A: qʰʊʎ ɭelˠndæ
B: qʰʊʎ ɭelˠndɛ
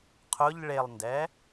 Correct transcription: B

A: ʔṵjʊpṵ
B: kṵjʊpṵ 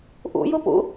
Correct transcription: A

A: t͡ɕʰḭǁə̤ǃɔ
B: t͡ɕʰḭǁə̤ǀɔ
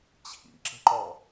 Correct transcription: A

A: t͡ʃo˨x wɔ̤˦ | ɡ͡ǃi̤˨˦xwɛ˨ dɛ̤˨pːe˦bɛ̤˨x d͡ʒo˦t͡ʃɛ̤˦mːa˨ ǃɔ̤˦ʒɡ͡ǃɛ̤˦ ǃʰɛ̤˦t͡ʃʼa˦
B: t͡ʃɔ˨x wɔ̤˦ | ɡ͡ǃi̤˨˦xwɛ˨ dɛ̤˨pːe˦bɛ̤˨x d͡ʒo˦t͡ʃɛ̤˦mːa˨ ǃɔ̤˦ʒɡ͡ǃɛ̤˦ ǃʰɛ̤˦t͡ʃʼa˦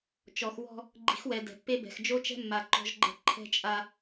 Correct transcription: B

